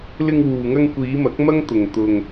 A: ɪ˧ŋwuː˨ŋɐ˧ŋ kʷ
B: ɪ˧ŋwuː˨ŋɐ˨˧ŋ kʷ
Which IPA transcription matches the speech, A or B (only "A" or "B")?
A